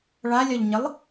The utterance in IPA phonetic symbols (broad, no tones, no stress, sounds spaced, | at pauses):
ɭ a lʲ ɒ ʎ ɲ ɪ lˠ